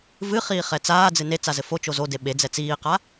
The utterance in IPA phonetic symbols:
v ɨ χ iː χ ɛ t͡s aː d͡z ɨ n e t͡s a z ɘ f o t͡ʃ o z o d e ɓ e d͡z ɛ t͡s iː q a

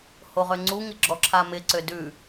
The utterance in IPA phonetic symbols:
h o ʁ ø ŋ͡ǀ u ŋ ɪ ɡ͡ǁ ɔ ǁʰ a m ɪ ǀ ø d ʉ

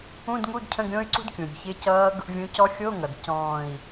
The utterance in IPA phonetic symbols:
ũ˧˥˧ d ŋ u˧˥˧ d cʰ ə̃˧˥˧ ɡ ɾʲ õ˦˥ y̯ ǀ ṳ˦˥ d kʲ ũ˩ ɾʲ ṳ˩ ç ɪ˧˥˧ c ʌː˦˥ ɡ | vʲ ũ˨˥ c ɔ˦˥ xʲ o˧˥˧ ŋ ʌ˩ d c ɔ̃ː˧˩ i̯

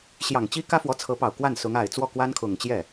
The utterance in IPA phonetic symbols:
ɕ j ɑ˨˩ ŋ t͡ɕ i˥ k ä˥ f w ɔ˧˥ t͡sʰ ɤ˧˥ p ɑ˨˩ ʊ̯ k w a˥˩ n s ʊ˧˥ ŋ a˨˩ ɪ̯ t͡s w ɔ˥˩ k w a˥ n kʰ ʊ˨˩ ŋ t͡ɕ j ɛ˥˩

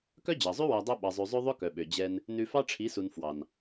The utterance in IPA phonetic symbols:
k œ˦ d͡ʑ ɑ˨ zˤ ʉ˦ w æ˧ dˤ œ˦ ɓ ɑ˧ zˤ ʉ˧ zˤ ø˦ ðˤ ɵ˦ k œ˨ ɓ ø˨ d͡ʑ ɛ˧ n | n ʉ˧ f ɑ˦ ʈ͡ʂʰ i˨˦ s u˨ n f w ɑ˨ n

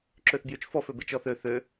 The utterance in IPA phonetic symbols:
ǁ ø θ b j y t͡ʃ f ɔ f ø b e t͡ʃ ɔ θ ø θ ø

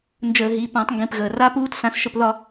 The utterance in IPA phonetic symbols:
n d͡ʒ əː˧˩˧ ɦ i˩˧˩ p ã˧˩˧ tˤ ŋ ɡ ĩ˩˧˩ p ɣ əː˩ r a˦˥ p uː˦˥ t s ã˧ s ʃ ə˧ p ð ɒ˥˧

